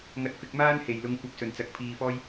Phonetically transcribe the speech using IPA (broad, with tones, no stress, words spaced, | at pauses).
ŋɐ˧t̚fɪ˧k̚maː˥n he˨˩jlʊ˨˧ŋkʷɐ˨˥p̚sɵ˨˩n t͡sɐ˨˥k̚pʰiː˧fɔː˥j